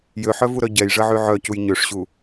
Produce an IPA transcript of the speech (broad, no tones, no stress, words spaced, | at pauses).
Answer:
jøħœvuɾœ ɟɛjʐəʕy ʕœcuj ɲøʂɕu